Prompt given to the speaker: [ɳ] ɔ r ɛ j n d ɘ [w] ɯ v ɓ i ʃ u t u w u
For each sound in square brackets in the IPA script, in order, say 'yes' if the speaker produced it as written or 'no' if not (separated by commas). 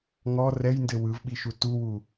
no, yes